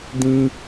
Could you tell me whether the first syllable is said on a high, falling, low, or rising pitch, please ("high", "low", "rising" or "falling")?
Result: high